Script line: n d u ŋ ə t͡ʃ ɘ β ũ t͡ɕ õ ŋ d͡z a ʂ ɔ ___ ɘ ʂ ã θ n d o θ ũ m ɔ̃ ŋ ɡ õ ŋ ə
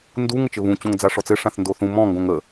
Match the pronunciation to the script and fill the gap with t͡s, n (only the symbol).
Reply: t͡s